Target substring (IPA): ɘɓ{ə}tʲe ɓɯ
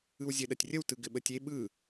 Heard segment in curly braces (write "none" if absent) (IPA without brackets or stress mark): ə